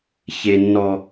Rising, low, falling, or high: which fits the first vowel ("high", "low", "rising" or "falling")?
high